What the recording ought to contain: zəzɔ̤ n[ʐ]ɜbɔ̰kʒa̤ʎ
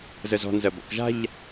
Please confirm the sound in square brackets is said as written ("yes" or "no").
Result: no